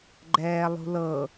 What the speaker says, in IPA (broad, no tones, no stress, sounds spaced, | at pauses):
ɡ͡ǃ ɛː lˠ ṳ l ɤ